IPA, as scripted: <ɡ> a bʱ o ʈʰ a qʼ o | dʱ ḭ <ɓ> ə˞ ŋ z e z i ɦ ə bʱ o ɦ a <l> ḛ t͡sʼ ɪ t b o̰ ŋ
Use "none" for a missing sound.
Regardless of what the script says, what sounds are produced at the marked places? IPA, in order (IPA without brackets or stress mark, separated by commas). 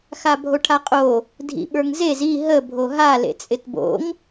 x, ɓ, l